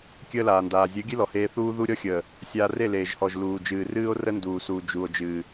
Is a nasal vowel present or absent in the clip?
absent